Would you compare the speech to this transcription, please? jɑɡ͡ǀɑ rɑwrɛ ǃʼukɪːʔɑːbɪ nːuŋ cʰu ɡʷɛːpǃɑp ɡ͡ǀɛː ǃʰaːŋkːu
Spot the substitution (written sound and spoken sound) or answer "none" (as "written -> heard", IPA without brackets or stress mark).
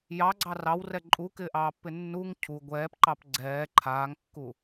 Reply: b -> pː